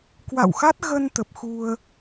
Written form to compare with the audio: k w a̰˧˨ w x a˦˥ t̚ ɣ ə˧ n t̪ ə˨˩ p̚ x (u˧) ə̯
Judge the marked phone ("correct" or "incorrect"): correct